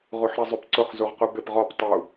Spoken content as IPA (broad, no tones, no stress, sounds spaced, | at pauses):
ʁ u ħ ɾ i zˤ y p ǀ ʊ χ z u ʁ q u b ɪ p ʁ ɔ p tˤ u